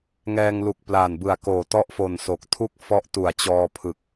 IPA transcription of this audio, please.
ŋɛː˧ŋlu˨˩k̚ plaː˨˩nbɯ˨˩a̯koː˨˩ tɔ˦˥ʔfo˨˩n so˨˩k̚ tʰu˥˩k̚ fɔ˦˥ʔtu˨˩a̯ t͡ɕɔː˧pʰɯ˨˩k̚

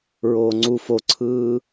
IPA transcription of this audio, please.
ɹoːŋ͡ǀu foǀʰɯː

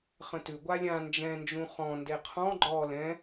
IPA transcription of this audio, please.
χə̃tʉ ɡʷalʲã nd͡ʒɛ̃nd͡ʒũ χɔ̃ ndeqʰɔ̃ ɡ͡ǃɔ lɛ̃

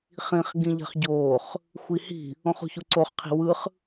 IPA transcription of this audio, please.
χĩχ ɡĩʎɛ̤χɟoːχ | xʷihi̤ | õχṳçuǀoχ qʰi̤wɯχ

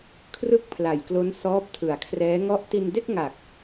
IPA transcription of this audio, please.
kʰrɯ˥˩k̚pʰla˨˩jklo˦˥n sɔː˦˥p̚tʰɯ˨˩a̯kʰrɛː˦˥ŋɔ˥˩ʔ ti˧nde˥˩k̚ŋa˨˩k̚

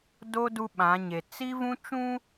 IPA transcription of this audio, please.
do˦ du˦ɓã˨˦ɲe˨ t͡si˦vũ˦ t͡ʃũ˦

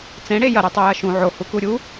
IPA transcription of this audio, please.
t͡sẽɽe jɐɾʉtˤʉ jɐʃũ ʕo hukuɾʲu

